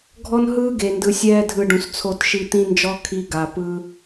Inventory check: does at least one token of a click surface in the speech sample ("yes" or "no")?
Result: no